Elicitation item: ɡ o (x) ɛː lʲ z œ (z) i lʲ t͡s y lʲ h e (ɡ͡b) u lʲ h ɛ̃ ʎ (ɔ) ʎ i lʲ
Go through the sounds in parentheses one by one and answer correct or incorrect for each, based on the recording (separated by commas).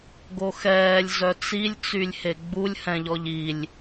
correct, incorrect, correct, correct